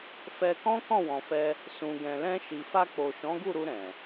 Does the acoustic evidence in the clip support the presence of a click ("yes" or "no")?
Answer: no